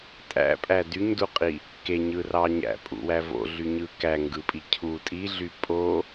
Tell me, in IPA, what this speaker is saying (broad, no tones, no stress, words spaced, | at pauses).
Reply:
tʼæ̰pʼæ dyɲduqʼi | keɲɯrɑ ɲæ̰pʼṵwæ vo̰ɮyɲɯ kæŋɡɯpʼi cʰu tʼiɮy pʼo